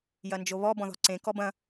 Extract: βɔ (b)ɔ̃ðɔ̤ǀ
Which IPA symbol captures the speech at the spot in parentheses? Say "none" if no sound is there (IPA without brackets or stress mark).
b